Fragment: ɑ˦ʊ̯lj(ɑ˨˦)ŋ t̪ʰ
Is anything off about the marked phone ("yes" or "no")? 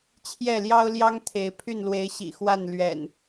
yes